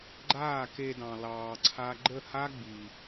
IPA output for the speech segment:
ɡ͡ǃ aː˦˨ k e˧ d ɑ̃˨ l ɑː˧ ǀʰ a˦ ɡ͡ǃ ə˦˨ h a˦ ɡ͡b i˨

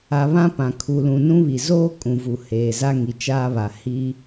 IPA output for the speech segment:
a˨ β ã˦ p ã˨ kʰ u˨ l ũ˨ n ũ˦ β i˨ z oː˦ kʼ ũ˨ v u˨ h eː˨ z a˦ ŋ i˨ t͡ʃ aː˦ β a˨ h i˦

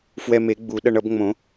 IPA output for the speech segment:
f w ɛ˧ m e˨˩˦ ɡ͡b u˨˩˦ ɗ ʌ˧ ɳ ʌ˨˩˦ b ŋ͡m õ˨˩˦

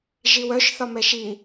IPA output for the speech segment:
ʒ i w œ ʃ θ ɒ m ɛ ʃ i

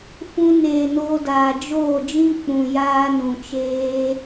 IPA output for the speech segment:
f ũ˧ n eː˨ n oː˧ d aː˨ d͡ʒ oː˦˨ d͡ʒ ĩ˦ k͡p ũ˨ j aː˦ n ũ˨ t͡ʃ eː˦

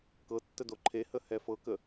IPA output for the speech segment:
k ɤ tː ə d o ǃʰ e h ə h ɛ f ɤ k ə

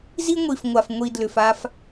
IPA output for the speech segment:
z i˦ ŋʷ i˨ f ŋʷ a˨ f ŋʷ i˨ d l ʏ˨ f a˦ f

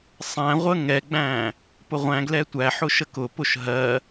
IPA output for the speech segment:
sˤ æ̃ ʁʷ ə ŋ ɛ ɡ͡b æ̃ | p ʊ ʁʷ æ̃ ɡ l ɛ tʷ æ ħ ʊ ʃ ə k ʊ p ʊ ʃ ɦ ɜ

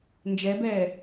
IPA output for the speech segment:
n d͡ʒ ɛ b ɛː

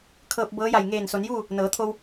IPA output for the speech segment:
kʰ ɤː˧ p̚ b ɤː˧˥ j a˧˩ j ŋ eː˧˩ n s o˩˧ n j uː˥˨ | n ɤː˩˧ t̪ʰ o˧ w

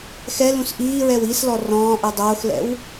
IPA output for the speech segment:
x ɛ l ũ s ʔ iː ɹ ɛ w i s l ɔ r ɔ̃ː ʔ ɯ dˤ oː x l ɛ̰ w

